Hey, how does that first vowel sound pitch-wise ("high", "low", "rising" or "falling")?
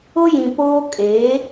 high